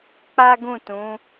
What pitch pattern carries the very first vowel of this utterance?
high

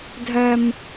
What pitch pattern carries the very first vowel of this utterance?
high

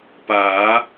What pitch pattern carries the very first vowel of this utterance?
rising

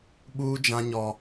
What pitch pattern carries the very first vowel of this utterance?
high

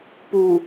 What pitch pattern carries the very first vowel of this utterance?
low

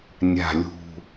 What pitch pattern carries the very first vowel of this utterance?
low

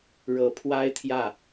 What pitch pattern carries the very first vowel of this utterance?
low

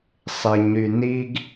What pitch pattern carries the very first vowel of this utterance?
low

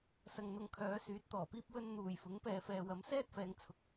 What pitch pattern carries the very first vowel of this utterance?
low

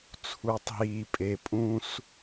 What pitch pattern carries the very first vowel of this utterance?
low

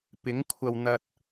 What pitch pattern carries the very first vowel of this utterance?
rising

